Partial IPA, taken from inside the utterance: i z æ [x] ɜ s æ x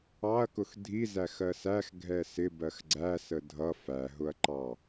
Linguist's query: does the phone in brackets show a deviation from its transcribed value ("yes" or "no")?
no